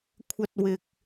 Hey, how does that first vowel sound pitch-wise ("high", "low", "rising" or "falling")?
high